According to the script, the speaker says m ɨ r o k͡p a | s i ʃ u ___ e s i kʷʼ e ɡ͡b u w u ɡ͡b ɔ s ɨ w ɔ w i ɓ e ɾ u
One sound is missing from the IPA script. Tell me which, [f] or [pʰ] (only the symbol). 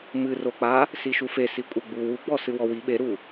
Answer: f